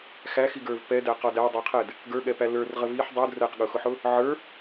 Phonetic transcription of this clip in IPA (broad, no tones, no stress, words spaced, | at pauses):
xæxiɡə˞v pɛdæqɔ dædˤə˞qʰɛd | ɡə˞ɠɛpæ lə˞rʁə viħ dˤud rɛqɠʊxʊħʊ | ʕə˞